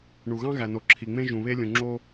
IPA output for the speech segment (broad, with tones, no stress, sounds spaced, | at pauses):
ɳ u˩ ɣ ɑ̃˥ ɣ æ˩ n o˩ ǁʰ i˩ ŋ͡m ẽ˥ ʒ ũ˩ β e˥ lʲ ũ˩ ŋ͡ǁ o˥